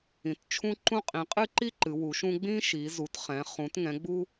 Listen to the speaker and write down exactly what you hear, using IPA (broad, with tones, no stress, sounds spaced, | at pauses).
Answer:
ĩ˩˧ t t͡ʃʰ ũ˦ ǃ ũ˦ qʼ ĩ˩˧ qʼ ɨ˦ ǃ i˦ ǃ ɨ˩˧ w u˩˧ ʃ ũ˦ ɡ͡b ĩ˦ ʃ i˩˧ z u˩˧ t χ ɛ̃˩˧ χ ũ˩˧ t ŋ ɛ̃˩˧ ɡ͡b u˦